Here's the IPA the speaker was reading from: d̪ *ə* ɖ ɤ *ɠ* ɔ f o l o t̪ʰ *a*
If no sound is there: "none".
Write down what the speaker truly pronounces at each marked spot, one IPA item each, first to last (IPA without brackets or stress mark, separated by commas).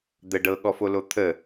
ə, ɠ, ə